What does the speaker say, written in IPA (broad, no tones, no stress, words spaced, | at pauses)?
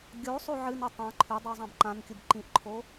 ɡʲo sˤoʕɨnɵ tˤã ǃʰʉdˤu zˤãbǃãnkʲub ǃĩʔǃʰo